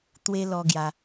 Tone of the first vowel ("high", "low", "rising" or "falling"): high